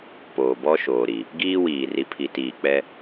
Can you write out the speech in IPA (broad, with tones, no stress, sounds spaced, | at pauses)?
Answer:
p oː˨ b ɔ˦ ʃ oː˨ ɾ i˨ | ɡ iː˦ w iː˨ r i˨ pʰ i˨ t iː˨ k͡p ɛ˦